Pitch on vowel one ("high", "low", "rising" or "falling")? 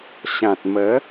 low